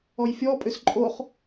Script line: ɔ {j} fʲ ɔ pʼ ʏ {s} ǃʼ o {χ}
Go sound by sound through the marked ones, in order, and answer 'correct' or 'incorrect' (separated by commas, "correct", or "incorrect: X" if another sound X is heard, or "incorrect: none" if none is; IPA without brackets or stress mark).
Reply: correct, correct, correct